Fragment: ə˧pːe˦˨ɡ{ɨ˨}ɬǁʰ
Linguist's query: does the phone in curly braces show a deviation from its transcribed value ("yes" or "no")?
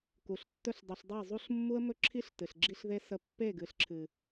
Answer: no